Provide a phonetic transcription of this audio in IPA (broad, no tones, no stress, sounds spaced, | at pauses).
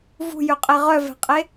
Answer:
v ṳ j ø qʼ e ʁ œ v ɛ̤ qʼ e